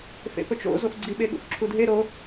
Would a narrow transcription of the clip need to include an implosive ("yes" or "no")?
yes